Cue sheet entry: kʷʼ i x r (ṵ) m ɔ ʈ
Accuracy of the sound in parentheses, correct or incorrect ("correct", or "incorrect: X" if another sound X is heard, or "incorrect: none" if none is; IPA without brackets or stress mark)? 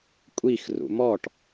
correct